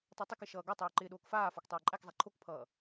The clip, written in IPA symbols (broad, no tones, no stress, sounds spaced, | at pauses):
tˤ æ tˤ ɪ k ɪ ʃ ʌː ɡ ɔ tˤ ʊː ǃ ɪː ɗ oː k f aː f ɔ k tˤ oː ǃʼ æ k zˤ æ ǃʰ o k pʰ ʌː